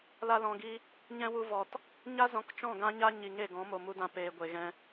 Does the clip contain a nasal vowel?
yes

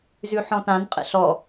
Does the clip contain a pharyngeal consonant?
yes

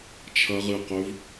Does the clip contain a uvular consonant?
yes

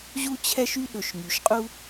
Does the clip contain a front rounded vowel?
yes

